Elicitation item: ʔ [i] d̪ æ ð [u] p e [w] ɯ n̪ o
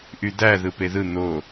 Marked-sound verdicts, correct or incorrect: incorrect: y, incorrect: ɯ, incorrect: ð

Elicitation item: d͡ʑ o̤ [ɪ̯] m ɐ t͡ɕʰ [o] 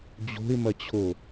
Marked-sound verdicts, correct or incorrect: correct, correct

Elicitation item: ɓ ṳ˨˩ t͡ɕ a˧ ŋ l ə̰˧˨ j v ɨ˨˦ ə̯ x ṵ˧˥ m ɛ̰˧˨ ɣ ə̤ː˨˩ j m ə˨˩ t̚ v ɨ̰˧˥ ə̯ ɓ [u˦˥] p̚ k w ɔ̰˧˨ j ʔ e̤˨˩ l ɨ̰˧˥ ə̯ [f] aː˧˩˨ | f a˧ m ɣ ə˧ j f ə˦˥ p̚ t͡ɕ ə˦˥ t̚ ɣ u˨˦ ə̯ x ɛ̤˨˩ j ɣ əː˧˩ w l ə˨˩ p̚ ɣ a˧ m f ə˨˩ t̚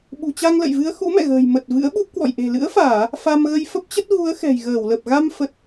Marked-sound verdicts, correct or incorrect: correct, correct

